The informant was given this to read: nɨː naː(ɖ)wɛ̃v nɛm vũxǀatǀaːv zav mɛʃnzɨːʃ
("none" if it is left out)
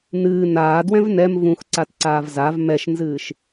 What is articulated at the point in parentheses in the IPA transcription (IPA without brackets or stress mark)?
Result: d